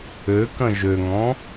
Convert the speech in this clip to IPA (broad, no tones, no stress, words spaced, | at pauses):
økɐ̃ ʒøŋɔ̃